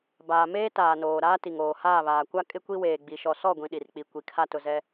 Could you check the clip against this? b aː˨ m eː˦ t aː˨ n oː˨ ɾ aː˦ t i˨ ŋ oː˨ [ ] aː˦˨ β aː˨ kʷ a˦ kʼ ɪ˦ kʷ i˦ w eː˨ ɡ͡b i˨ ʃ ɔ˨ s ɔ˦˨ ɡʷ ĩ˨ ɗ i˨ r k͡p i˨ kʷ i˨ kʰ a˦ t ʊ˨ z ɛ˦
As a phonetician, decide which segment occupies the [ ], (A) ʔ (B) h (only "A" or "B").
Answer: B